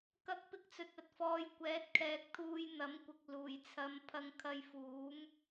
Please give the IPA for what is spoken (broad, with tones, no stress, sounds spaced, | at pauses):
k ɐ˧ k̚ p ɪ˧ k̚ t͡s ɵ˨ t̚ ɐ˨ t̚ f ɔː˨˧ j kʷ ɛː˨˥ t̚ kʰ ɛː˨ k̚ t̪ʰ uː˧ j n̪ ɐ˨˥ m kʷ ɪ˨ k̚ l uː˨˩ j t͡sʰ ɐ˨˧ m pʰ ɐ˧ ŋ kʰ ɐ˧ j f uː˨˥ m